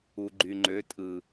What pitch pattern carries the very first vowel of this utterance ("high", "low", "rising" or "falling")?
low